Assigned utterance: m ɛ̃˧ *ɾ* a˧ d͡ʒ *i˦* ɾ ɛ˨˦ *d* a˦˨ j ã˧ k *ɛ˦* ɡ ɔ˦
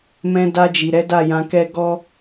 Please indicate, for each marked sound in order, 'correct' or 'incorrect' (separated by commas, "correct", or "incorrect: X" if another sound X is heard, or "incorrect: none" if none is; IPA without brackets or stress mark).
incorrect: d, incorrect: i˨, correct, correct